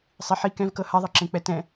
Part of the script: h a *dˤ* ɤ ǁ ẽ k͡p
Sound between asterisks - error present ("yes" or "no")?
yes